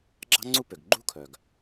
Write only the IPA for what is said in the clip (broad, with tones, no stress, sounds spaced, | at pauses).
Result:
ɡ͡ǁ ɑ̤˥ ŋ͡ǀ u˥ p ø˩ ɡ ɡ͡ǃ ṳ˥ kʰ œ˩ ɡ